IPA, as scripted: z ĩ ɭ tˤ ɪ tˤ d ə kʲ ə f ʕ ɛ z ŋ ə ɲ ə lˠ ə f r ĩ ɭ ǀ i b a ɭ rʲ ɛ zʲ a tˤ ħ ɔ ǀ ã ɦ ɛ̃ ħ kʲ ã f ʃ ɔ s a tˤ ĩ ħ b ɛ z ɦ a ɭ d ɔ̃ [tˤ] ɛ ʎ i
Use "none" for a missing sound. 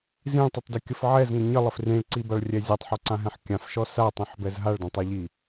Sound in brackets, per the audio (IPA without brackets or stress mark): tˤ